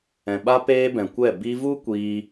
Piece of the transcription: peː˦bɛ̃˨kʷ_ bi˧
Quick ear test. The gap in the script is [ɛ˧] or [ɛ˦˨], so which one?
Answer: ɛ˦˨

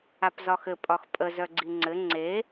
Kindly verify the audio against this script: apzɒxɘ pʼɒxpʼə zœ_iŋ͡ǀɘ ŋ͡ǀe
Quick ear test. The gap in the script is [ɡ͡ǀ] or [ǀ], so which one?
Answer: ɡ͡ǀ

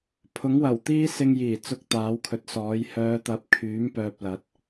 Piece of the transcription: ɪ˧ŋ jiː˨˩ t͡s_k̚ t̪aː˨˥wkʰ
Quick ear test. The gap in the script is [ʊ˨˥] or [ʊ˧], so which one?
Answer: ʊ˧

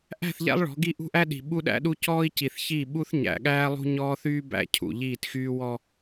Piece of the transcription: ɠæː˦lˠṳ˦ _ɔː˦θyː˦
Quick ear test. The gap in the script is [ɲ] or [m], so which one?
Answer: ɲ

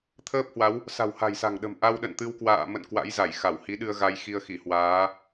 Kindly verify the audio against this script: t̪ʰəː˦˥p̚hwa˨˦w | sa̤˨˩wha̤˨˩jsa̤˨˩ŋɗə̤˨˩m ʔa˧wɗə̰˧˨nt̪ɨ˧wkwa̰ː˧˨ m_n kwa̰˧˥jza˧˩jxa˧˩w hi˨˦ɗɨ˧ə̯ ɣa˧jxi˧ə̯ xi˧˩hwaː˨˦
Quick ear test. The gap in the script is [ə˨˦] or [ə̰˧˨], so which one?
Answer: ə̰˧˨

